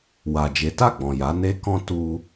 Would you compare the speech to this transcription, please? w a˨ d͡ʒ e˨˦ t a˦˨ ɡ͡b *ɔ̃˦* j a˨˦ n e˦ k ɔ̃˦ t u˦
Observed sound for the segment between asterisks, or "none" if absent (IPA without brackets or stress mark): ɔ̃˨